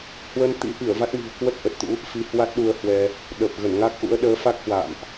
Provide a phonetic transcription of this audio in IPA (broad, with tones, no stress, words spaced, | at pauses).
hwə˧nt̪ḭ˧˥ʔi˧˩ə̯ va˦˥t̚mi̤˨˩ə̯kwə˦˥t̚ ʔə˨˩t̚t̪ṵ˧˥ | fi˧hwa˦˥t̚ɗu˧ə̯hwɛ˧ | ɗə˨˩p̚ ɣə˧˩nŋa˦˥k̚ʔṵ˧˥ə̯ ɗəː˨˦fa˦˥k̚hwa̰ː˧˨mʔ